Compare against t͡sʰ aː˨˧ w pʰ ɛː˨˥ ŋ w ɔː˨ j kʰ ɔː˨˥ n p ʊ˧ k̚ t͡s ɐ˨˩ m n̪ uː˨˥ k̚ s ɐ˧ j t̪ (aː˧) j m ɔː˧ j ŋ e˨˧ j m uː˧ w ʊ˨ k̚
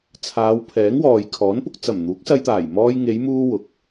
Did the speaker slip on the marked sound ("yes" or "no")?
yes